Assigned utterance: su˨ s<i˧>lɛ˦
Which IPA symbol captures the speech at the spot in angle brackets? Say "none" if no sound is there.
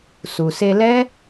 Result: e˧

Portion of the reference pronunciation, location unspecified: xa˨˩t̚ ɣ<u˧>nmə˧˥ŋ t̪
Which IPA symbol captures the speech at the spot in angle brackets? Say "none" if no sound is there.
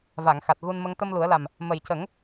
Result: u˧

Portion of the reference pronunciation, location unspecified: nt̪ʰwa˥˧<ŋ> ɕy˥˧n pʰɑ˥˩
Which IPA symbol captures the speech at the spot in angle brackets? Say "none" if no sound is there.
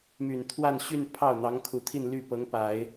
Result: n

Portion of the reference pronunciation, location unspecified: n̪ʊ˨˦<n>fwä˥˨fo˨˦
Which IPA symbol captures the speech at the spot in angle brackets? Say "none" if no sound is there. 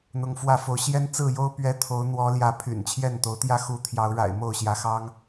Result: ŋ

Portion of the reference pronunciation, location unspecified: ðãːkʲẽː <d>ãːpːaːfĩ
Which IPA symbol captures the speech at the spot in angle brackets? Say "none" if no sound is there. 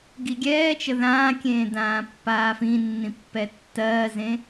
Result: d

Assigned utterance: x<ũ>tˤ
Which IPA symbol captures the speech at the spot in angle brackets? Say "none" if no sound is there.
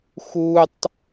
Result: u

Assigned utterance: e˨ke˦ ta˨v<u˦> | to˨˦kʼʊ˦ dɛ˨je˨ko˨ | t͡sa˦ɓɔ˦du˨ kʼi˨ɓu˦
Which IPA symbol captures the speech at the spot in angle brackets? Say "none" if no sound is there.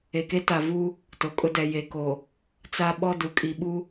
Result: u˦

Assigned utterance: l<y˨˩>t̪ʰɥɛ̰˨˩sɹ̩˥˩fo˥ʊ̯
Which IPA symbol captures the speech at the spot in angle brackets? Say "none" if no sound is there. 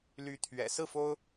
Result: y˧˥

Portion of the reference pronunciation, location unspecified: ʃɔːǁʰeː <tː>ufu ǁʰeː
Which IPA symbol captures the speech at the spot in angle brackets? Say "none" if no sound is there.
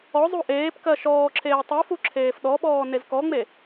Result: tˤ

